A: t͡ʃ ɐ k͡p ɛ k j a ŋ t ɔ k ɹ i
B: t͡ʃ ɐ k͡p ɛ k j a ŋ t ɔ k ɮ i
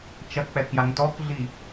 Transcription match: B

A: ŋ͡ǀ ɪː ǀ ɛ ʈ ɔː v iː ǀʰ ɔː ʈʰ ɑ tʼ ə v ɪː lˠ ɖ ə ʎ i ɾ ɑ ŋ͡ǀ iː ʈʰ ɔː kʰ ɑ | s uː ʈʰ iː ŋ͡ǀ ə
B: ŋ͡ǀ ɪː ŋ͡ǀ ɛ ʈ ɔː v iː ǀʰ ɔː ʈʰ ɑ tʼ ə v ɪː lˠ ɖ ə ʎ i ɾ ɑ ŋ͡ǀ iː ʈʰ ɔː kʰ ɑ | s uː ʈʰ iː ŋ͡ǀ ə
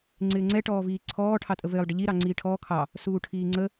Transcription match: B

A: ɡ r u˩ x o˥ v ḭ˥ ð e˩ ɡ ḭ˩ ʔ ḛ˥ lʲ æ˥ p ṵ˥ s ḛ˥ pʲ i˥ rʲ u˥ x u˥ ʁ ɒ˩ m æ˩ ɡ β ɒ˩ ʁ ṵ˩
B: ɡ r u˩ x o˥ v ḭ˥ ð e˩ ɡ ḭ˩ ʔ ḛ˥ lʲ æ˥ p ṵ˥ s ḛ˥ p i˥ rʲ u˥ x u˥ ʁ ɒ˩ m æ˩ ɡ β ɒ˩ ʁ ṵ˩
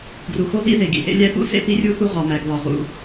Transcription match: B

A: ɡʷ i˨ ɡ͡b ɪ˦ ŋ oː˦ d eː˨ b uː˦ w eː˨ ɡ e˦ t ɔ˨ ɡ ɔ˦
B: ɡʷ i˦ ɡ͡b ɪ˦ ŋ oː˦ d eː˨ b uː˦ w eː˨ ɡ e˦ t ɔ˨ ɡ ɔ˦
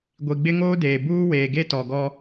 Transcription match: A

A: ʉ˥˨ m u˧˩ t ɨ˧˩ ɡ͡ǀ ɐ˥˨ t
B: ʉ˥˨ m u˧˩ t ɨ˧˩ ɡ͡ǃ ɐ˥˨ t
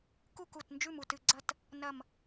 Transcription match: A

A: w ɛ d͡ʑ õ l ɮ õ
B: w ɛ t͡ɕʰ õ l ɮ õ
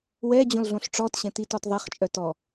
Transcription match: A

